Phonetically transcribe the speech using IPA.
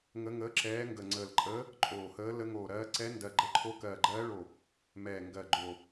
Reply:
ŋə˧˥ŋəː˧˥ǁɛː˧˥ ŋɡə˧˩ŋ͡ǀəː˧˩lǃʼəː˧˥ | ǃʼoː˧˩həː˧˥ lə˧˥ŋoː˧˩ɾɜː˧˥ ǀɛ˧˥ndɜ˧˩ɡ͡ǃə˧˥ǃʰo˧˥ kɜː˧˩ɡ͡ǃɜː˧˥ɭo˧˩ | mɛː˧˩ ŋɡɜ˧˩ɡ͡ǃo˧˩

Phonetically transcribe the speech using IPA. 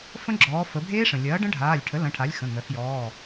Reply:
fə̃˦˥ɡ͡ǁɔː˩˧ fə˩˧bʱeː˦˥ʂə̃˩ lʲɐː˩˥ɖə̃˦˥ɖʱaː˩˧˩lʲʈʰə˩˥ lɐ̃˩˧˩ʈʰa˩˥lʲ xə̃˩˧˩ ŋœ˩˧xjɔː˩˧˩

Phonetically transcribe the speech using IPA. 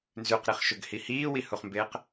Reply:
nzʉqɾiχʃɵɡhi hiːwihuχmbeːq

